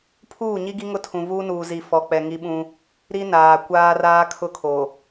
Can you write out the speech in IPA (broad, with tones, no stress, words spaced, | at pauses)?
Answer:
pʰuː˦˨ɲi˦ɡi˦ ŋʊ˦tʰũ˨ vuː˦nuː˨zi˨ fɔ˨k͡pɛ˨ ŋi˦ɓũ˦ | ɾi˦naː˨ kʷaː˦raː˦ kʰʊ˦kʰo˨